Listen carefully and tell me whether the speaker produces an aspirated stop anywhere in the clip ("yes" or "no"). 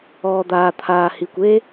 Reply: yes